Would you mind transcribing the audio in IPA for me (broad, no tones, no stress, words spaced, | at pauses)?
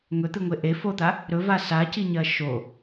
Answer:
ŋɵt̪ɨŋʷe ʔe fot̪a | ɾɵva saciɲɐ ʃo